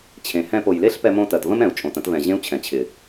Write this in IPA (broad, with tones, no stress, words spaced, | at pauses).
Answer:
t͡ɕʰẽ˨hɛ̃˦˨p o˨jle˦ɬpɛ˧mõ˧ tɜ˨tvə̃˦mɛ̃˨u̯t͡ʃʼõ˨t ə̃˧tvɛ̃˨ ʑẽ˦u̯t͡ɕʰɛ̃˨t͡ɕʰɪ˨